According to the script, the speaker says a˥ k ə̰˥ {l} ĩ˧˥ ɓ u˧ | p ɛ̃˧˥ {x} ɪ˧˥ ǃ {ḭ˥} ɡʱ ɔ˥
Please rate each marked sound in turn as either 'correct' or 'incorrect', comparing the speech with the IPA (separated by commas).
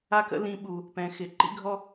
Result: correct, correct, correct